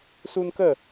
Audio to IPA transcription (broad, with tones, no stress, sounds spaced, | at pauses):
s u˦ n k ə˥˧